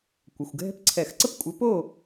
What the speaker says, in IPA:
kʷə˩˧˩xʷɡʱɛ̤˥pǀʰɛ˧˩˧x ǀə˥pkʷʼɘ˨˥po˥˨

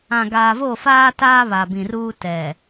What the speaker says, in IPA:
ã˨ɡaː˨vo˦˨faː˦ taː˦ βa˨bĩ˨ruː˦ tɛ˨

